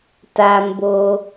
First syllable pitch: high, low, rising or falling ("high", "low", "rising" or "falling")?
low